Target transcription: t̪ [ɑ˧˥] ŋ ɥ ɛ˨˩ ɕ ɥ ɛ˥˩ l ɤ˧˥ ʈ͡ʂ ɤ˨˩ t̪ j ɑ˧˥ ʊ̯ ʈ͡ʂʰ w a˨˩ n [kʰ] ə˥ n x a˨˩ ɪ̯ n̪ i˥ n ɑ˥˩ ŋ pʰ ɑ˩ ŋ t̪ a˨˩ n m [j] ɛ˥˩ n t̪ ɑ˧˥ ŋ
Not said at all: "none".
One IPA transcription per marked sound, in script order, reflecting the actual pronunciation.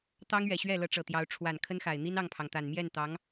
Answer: ɑ˥, kʰ, j

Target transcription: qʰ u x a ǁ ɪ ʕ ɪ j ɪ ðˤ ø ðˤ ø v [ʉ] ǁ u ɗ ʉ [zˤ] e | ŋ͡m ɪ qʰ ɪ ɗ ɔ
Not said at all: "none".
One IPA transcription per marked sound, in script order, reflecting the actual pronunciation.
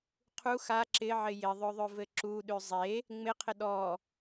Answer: ɘ, zˤ

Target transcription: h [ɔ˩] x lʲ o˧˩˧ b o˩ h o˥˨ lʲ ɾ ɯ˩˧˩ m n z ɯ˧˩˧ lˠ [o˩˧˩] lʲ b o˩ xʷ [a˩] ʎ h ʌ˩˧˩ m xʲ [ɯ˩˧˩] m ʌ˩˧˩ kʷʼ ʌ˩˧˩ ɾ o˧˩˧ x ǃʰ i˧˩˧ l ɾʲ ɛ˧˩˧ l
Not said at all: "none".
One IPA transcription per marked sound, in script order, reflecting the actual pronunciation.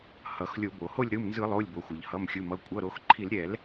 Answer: ʌ˩, o˩˧˩, ʌ˩, ɯ˩˧˩

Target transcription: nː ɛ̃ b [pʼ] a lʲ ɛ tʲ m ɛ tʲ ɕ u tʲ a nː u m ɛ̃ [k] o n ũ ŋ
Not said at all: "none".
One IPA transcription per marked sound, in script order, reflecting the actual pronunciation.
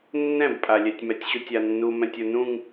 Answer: pʼ, tʲ

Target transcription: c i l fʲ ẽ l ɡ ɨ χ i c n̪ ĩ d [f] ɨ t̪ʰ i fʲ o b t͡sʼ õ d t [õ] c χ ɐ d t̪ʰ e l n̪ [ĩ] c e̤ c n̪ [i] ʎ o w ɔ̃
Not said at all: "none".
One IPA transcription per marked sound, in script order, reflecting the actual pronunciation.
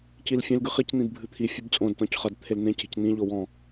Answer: bʱ, ɔ̃, ẽ, ĩ

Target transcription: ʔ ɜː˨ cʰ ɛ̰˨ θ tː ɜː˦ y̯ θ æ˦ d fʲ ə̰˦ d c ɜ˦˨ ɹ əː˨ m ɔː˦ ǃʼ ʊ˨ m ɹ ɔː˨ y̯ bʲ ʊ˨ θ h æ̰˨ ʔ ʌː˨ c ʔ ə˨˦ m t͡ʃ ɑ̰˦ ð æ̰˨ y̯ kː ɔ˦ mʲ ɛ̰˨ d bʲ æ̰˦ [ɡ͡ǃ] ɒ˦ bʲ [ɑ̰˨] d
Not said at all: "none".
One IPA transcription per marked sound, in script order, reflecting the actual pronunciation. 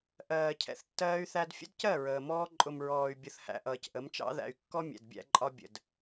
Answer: ǃʼ, ə̰˨

